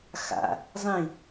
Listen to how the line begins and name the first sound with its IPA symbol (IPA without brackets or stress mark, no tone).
x